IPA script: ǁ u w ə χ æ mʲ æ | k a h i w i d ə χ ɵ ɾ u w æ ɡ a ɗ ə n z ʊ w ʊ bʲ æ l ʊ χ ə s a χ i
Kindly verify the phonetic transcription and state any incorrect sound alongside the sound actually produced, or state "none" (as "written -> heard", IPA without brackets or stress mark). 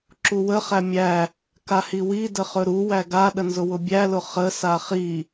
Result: none